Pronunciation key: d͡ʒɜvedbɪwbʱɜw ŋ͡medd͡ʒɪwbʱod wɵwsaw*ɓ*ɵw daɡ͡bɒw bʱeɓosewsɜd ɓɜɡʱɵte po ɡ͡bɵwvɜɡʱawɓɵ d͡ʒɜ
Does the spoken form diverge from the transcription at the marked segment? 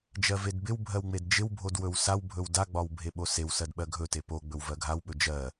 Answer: yes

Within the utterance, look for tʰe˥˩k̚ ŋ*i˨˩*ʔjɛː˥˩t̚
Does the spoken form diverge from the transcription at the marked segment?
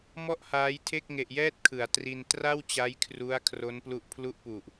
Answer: yes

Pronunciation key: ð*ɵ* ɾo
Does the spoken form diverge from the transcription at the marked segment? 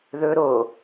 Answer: no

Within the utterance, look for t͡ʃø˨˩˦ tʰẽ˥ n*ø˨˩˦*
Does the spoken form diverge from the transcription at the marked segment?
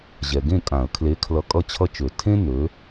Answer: yes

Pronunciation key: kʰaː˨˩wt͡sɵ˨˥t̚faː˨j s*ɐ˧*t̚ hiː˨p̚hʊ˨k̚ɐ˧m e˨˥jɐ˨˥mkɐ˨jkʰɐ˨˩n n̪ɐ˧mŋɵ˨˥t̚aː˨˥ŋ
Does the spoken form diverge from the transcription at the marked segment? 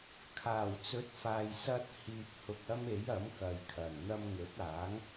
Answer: no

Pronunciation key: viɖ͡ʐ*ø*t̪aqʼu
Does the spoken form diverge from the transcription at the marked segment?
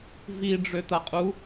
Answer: no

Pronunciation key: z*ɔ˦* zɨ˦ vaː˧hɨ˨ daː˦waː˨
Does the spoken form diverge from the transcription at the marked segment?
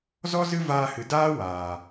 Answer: no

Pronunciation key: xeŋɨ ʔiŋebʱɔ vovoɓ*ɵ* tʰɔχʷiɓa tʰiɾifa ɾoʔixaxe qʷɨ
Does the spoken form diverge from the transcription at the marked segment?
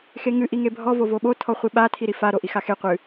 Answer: yes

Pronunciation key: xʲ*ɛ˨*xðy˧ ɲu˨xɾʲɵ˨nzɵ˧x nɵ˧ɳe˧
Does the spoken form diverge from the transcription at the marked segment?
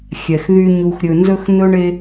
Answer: no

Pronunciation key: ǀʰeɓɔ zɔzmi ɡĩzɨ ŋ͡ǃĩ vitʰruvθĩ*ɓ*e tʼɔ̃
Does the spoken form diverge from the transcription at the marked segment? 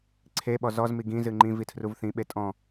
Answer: no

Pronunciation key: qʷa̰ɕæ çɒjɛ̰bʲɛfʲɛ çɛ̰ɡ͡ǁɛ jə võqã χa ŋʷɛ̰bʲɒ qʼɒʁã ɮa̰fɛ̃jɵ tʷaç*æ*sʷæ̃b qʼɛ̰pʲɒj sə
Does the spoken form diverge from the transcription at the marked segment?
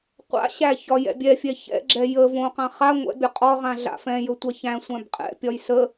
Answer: yes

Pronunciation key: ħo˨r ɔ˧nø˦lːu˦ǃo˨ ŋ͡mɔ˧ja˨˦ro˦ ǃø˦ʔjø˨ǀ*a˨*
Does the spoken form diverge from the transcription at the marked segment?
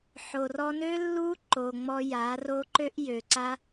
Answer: yes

